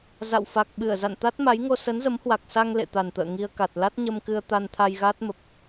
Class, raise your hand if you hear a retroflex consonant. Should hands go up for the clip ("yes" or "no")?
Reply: no